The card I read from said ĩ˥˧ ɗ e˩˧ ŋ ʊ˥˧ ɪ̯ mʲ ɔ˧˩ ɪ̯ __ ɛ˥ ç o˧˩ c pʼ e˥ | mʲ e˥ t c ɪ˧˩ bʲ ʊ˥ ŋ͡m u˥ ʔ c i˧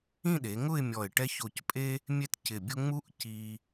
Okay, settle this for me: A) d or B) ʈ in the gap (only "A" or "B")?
B